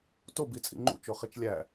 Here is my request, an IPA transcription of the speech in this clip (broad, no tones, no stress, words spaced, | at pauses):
tobit͡sʼḭ ŋ͡ǃṵt͡ʃoχit͡ʃ lʲæ